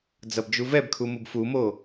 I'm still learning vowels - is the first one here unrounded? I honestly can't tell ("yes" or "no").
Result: yes